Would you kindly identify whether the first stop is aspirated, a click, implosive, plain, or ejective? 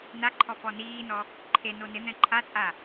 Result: click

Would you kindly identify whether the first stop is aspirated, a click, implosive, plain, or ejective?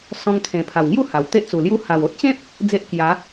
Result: aspirated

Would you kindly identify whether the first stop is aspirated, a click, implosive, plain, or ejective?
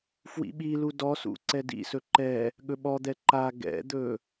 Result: implosive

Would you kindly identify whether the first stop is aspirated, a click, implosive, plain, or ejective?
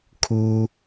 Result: aspirated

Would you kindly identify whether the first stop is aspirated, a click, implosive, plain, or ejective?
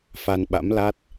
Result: implosive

